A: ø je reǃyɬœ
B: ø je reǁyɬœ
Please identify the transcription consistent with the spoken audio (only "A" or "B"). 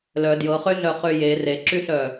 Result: B